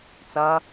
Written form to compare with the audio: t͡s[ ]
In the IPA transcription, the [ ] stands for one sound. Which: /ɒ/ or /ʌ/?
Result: ʌ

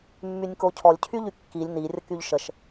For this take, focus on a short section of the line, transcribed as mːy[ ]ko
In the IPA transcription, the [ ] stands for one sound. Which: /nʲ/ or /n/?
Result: nʲ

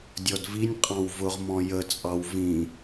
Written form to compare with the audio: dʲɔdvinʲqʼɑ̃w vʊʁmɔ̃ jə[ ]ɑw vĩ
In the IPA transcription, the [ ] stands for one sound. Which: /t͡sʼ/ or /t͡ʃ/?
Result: t͡sʼ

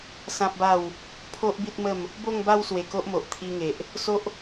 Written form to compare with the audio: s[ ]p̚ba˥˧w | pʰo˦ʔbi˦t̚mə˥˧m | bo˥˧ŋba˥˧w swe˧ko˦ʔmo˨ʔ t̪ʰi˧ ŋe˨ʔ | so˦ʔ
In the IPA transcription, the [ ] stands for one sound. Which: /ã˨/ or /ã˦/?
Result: ã˦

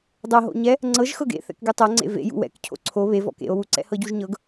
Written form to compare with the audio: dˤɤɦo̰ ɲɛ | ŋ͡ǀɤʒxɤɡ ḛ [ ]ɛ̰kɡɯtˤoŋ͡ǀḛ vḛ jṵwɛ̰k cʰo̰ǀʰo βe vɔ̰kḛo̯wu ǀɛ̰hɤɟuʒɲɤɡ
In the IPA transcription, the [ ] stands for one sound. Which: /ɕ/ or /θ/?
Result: θ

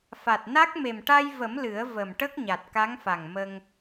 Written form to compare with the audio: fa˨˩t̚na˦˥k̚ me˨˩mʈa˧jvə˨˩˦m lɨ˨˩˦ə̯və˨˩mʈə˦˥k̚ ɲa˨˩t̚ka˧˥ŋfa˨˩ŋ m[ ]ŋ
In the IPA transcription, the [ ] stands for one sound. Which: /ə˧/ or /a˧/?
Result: ə˧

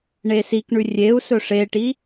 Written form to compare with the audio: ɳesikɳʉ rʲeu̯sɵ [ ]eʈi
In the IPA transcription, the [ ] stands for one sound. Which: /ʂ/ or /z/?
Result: ʂ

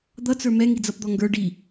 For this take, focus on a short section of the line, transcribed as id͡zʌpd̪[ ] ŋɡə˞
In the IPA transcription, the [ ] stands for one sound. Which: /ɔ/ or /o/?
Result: ɔ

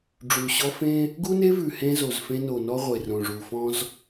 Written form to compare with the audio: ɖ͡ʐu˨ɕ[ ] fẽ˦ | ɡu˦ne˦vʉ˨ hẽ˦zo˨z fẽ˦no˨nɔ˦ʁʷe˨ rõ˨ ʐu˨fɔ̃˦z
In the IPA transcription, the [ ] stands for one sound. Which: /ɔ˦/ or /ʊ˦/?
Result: ɔ˦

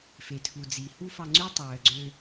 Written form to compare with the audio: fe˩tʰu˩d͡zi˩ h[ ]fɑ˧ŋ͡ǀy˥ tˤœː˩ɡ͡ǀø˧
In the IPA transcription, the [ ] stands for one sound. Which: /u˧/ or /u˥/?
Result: u˥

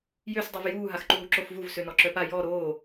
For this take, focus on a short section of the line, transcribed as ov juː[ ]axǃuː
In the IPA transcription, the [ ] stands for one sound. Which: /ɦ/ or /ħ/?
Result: ɦ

